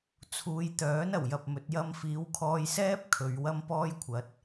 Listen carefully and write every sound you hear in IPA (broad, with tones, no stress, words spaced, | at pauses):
t͡sʰuː˨˧jt̪œː˨˥n ɐ˨˩wjɐ˨p̚mɵ˨˥t̚ jɐ˧mfiː˨˧wkʰɔː˧jsɛː˥p̚ kʰɵ˨˧ɥ wɐ˥mpɔː˥jkʷʰɐ˨˥t̚